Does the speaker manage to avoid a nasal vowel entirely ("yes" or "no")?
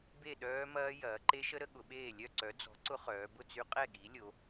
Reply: yes